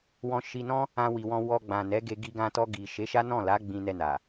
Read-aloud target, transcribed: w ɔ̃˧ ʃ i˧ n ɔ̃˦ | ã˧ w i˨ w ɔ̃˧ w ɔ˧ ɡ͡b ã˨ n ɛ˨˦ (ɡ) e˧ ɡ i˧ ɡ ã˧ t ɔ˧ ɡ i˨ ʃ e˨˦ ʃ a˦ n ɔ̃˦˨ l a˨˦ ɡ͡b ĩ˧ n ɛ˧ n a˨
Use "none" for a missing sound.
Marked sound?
ɡ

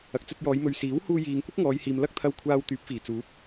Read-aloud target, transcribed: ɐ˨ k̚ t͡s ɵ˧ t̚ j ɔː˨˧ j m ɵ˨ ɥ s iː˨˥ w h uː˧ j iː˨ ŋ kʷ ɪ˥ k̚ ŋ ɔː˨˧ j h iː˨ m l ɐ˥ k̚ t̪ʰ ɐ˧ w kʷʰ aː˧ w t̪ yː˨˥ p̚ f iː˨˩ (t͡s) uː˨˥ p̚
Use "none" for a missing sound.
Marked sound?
t͡s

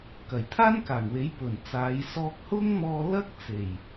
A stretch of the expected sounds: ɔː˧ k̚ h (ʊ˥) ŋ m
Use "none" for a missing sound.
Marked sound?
ʊ˥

